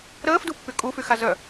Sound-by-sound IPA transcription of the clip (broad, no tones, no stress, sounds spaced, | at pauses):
ɾ əː f d u pː y kʼ u f y x a z œ